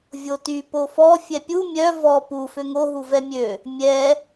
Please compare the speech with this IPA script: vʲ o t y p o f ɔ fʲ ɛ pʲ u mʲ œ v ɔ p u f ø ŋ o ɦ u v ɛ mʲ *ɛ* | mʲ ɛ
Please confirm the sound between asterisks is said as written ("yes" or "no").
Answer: no